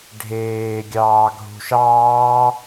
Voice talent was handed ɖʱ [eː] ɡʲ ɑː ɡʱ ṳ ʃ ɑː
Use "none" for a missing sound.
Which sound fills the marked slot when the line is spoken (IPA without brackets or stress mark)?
eː